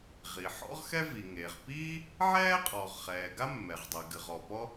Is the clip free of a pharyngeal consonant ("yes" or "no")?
no